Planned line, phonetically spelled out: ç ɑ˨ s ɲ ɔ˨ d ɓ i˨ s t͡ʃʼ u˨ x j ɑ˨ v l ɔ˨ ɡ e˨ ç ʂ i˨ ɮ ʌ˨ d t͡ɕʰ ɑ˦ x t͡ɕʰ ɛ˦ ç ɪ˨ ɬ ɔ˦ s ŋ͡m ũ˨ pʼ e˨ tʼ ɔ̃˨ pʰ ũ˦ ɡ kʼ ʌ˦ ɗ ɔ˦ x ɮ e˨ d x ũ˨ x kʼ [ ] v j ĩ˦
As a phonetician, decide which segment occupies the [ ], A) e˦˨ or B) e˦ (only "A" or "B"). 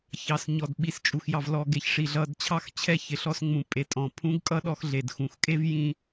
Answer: B